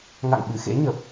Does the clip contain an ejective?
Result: no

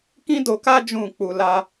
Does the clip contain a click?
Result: no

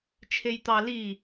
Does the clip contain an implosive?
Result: no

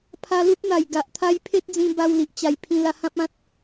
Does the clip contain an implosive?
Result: no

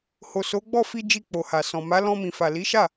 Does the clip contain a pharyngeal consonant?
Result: no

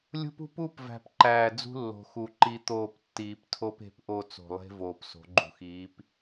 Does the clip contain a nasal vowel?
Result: no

